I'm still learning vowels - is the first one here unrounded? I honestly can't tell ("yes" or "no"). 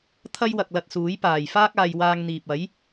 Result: yes